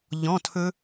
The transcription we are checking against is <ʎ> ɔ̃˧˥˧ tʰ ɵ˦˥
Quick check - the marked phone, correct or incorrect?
correct